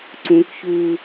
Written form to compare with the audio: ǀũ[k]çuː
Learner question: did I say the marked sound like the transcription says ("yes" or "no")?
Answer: yes